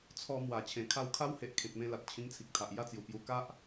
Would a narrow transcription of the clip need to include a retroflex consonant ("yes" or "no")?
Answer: no